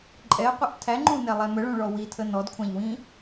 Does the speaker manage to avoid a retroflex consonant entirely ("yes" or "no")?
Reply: no